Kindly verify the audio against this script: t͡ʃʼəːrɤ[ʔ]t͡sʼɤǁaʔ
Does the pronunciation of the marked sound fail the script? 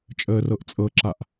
no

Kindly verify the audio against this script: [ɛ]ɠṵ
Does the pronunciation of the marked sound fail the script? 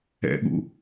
yes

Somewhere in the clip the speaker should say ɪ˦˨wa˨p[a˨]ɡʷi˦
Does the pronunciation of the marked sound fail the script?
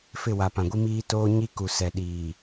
yes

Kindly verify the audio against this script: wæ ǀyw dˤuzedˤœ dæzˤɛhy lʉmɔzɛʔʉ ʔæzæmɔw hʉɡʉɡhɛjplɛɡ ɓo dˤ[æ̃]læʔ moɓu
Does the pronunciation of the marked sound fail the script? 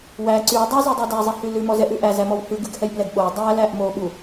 yes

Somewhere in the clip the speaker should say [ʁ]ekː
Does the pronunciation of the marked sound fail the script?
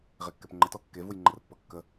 no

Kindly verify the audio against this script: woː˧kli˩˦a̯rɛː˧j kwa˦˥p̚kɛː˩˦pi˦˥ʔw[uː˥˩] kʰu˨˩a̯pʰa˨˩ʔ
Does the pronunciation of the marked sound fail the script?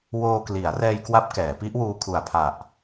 yes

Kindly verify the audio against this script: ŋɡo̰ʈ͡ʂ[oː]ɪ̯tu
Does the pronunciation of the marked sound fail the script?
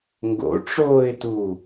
no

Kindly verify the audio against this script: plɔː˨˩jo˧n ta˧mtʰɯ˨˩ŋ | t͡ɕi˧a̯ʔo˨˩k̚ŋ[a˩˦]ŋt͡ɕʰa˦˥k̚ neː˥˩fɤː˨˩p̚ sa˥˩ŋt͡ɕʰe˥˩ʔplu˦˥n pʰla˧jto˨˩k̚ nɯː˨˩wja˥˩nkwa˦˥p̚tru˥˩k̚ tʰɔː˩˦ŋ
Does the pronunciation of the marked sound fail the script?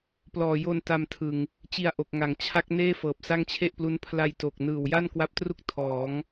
no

